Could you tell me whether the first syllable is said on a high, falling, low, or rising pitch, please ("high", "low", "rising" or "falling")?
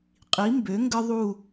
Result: rising